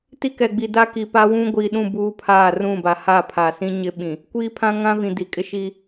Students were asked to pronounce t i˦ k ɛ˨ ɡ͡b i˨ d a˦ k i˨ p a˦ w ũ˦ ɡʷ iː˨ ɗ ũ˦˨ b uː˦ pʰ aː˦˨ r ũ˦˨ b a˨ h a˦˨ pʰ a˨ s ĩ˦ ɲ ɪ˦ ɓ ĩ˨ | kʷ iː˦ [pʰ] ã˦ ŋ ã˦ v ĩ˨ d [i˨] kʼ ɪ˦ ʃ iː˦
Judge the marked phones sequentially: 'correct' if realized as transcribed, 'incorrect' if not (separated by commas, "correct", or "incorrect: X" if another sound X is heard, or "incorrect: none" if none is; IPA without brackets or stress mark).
correct, correct